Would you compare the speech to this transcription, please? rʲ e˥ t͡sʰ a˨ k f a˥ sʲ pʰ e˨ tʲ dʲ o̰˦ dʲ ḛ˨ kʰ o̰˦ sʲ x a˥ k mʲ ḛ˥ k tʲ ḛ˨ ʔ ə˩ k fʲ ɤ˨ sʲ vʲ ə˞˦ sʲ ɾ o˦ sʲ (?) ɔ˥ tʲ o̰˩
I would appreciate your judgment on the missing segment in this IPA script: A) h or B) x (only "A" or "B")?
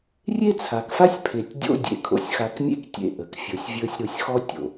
B